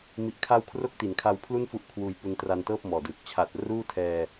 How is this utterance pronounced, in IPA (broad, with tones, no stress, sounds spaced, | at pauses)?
m i˨˩ ʔ kʰ a˦˥ w kʰ r o˦˥ k̚ t i˩˦ n kʰ a˧ w pʰ l u˥˩ n f u˦˥ ʔ kʰ w uː˧ j p u˧ n t r a˧ n t ɤː˥˩ p̚ m ɔː˨˩ d ɯː˨˩ k̚ t͡ɕʰ a˨˩ t̚ r uː˥˩ tʰ ɛː˧